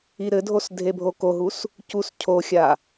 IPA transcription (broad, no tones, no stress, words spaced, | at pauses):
iɾɘdʱos dʱebʱokoɦus | cuscʰoxʲa